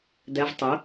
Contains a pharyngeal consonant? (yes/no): no